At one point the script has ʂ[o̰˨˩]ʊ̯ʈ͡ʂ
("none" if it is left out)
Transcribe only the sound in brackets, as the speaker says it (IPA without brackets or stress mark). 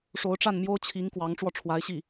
o˧˥